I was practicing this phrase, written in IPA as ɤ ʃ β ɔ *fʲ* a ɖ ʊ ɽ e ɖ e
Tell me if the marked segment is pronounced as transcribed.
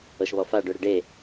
no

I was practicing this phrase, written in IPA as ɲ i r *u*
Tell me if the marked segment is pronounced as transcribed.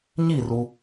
yes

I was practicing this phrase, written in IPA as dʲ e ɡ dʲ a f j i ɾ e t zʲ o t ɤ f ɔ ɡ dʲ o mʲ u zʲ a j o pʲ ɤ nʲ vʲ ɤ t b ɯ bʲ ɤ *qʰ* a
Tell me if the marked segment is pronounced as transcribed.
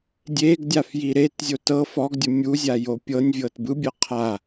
yes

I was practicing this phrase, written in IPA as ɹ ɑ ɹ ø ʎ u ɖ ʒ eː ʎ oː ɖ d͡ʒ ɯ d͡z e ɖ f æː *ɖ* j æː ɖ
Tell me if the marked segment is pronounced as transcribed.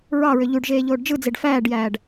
yes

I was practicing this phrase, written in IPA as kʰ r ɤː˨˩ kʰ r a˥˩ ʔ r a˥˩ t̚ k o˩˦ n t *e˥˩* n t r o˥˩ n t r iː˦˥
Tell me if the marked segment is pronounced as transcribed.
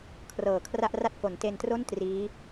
no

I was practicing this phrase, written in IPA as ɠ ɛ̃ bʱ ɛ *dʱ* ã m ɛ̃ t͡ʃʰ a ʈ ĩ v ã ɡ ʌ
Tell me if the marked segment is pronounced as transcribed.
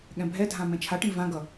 yes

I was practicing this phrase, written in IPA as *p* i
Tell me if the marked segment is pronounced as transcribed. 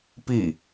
yes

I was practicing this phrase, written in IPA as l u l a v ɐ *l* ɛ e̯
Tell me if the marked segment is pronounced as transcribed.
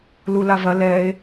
yes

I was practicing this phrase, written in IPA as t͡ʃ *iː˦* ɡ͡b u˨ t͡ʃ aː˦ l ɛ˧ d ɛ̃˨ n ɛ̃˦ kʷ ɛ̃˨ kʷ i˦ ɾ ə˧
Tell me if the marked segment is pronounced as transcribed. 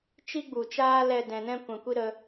no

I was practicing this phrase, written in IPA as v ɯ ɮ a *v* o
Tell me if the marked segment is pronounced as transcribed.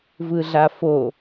no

